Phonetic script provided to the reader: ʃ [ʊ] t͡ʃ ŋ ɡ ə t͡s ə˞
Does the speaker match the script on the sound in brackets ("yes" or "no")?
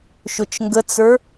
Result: yes